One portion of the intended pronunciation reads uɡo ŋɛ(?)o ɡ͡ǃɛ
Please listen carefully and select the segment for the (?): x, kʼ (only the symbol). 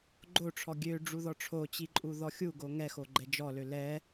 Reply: x